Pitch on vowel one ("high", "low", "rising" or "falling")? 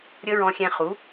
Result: high